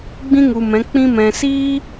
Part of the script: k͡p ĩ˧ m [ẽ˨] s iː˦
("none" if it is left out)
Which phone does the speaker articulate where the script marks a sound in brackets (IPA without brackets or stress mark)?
ɛ̃˨